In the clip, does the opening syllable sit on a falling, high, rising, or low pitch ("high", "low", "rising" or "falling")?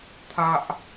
high